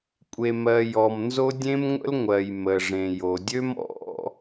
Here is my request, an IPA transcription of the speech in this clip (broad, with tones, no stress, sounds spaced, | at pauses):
kʷʼ e˩ m ɜ˩ j ɔ˩ m n z o˥ dʲ ẽ˥ m ŋʷ ə̰˥ l ŋʷ ɜ˩ j m ə˩ ʐ ẽ˩ j o˩ dʲ ø˥ m ɔ̰˥